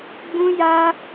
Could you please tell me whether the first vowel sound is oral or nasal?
nasal